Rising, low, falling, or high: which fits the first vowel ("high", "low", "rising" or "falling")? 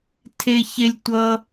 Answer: high